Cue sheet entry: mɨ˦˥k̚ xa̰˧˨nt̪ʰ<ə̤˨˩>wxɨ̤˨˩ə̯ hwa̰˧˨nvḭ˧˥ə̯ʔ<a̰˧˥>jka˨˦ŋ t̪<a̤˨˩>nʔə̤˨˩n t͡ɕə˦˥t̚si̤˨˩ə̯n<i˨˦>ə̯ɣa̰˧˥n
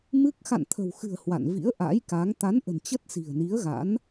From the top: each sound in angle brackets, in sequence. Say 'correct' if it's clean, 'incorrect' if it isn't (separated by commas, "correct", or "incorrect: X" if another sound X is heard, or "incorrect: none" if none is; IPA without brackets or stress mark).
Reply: correct, correct, incorrect: a˨˦, correct